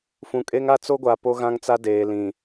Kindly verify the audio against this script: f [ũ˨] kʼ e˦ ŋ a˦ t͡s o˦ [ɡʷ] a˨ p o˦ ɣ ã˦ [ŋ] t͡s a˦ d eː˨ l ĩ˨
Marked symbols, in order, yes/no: yes, yes, yes

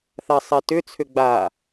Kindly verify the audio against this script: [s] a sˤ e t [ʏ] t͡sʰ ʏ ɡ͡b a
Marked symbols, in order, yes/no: no, yes

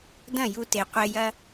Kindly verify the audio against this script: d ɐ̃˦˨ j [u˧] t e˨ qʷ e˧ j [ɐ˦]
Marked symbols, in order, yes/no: yes, yes

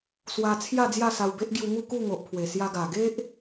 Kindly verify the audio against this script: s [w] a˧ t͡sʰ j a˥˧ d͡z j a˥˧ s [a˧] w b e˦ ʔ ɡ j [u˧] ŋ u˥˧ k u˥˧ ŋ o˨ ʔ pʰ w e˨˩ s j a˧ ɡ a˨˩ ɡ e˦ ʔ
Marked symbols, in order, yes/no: yes, yes, yes

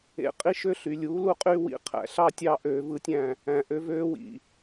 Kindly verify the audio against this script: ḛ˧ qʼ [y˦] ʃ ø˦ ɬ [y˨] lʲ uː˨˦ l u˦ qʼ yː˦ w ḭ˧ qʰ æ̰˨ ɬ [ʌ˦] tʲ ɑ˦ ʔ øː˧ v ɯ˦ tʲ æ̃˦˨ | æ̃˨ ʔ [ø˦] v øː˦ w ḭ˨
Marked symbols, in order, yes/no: no, yes, no, no

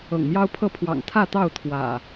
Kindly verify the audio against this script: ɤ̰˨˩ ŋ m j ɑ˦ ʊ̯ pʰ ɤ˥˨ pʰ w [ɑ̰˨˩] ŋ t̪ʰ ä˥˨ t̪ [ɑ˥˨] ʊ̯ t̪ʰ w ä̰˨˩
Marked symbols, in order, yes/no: yes, yes

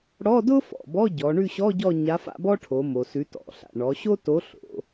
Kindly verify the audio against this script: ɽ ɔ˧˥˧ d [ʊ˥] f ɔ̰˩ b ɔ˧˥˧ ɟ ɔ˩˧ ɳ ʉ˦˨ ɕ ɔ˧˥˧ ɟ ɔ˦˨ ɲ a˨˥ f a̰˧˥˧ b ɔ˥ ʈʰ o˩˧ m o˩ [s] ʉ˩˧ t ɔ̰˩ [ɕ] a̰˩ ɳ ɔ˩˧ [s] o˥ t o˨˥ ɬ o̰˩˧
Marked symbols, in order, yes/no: yes, yes, no, no

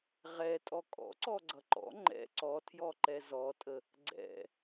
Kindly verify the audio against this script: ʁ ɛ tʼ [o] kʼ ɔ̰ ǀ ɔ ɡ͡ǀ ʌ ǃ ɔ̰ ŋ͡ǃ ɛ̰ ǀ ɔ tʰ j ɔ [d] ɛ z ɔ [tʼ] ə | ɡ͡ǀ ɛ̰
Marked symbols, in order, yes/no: no, no, yes

